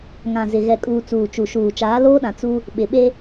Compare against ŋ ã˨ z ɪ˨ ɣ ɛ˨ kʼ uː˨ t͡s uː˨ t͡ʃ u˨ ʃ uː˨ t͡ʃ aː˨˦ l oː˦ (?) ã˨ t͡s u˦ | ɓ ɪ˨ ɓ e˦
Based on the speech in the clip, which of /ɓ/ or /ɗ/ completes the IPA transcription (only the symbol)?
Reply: ɗ